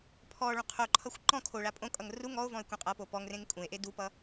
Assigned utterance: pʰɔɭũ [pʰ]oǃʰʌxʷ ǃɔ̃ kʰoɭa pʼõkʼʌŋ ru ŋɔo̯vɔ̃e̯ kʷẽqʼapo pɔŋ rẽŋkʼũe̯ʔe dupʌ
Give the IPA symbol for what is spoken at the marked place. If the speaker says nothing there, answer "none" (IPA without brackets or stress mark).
qʰ